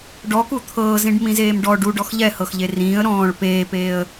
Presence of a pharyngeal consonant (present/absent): absent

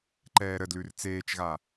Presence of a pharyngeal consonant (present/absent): absent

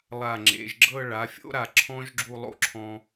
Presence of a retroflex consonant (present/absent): present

